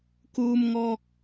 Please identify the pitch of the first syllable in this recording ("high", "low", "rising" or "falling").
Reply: high